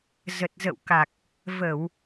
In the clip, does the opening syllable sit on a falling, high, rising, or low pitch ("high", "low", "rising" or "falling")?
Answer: low